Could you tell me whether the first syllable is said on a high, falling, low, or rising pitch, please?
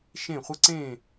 falling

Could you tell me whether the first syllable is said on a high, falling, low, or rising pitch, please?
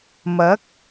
rising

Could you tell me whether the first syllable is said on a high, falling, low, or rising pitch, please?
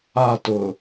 falling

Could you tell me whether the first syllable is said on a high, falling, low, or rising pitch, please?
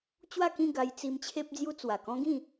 falling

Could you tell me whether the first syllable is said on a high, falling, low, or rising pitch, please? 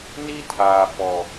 high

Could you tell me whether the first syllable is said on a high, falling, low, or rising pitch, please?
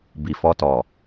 low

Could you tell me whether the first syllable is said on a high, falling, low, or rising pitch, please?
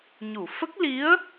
low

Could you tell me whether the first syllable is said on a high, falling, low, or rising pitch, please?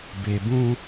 low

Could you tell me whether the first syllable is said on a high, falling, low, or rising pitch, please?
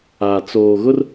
low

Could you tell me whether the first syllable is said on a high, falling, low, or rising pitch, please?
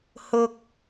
high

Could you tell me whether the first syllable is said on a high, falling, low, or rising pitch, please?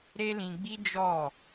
high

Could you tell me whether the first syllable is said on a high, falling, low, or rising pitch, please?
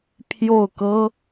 falling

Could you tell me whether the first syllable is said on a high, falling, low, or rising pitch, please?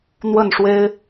falling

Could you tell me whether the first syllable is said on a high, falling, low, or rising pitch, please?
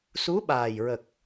rising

